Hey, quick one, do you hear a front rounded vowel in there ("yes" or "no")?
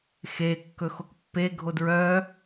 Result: yes